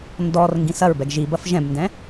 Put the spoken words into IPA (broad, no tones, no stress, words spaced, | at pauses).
ndɔr ŋɡĩsɐɹbɛɡ ʒibɐf ʒɛ̃bndɛ̃